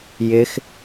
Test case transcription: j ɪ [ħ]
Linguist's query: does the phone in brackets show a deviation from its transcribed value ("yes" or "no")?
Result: yes